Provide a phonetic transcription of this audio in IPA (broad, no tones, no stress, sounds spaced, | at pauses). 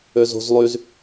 ø z o̤ z lˠ y z